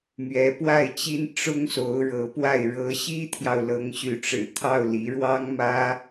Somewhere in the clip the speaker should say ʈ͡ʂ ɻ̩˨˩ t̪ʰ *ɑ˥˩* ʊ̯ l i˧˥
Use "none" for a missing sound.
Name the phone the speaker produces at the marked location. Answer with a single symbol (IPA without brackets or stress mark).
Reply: ɑ˥˩